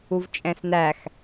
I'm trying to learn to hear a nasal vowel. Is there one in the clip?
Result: yes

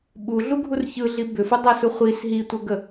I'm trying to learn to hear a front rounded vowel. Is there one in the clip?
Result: yes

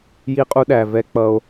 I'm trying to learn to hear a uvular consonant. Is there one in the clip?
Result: yes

